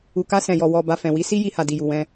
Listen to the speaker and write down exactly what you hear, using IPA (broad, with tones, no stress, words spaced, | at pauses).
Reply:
u˨ka˧ sɛ̃˨jɔ˨ wɔ˨ba˨ fɛ̃˨wi˨˦ si˦ji˧ha˨ di˨ju˨wɛ̃˧